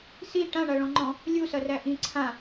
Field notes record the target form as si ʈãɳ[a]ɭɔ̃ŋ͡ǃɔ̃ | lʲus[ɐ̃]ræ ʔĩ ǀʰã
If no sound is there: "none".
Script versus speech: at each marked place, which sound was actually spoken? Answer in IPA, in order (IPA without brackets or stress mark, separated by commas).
a, ɐ